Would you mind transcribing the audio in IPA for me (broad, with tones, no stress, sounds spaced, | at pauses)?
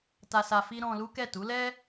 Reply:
t a˧ s a˧ f i˦ ɾ ɔ̃˧ l u˦ k ɛ˦˨ t u˨˦ l ɛ˦